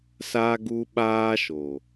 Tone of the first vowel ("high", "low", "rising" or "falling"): high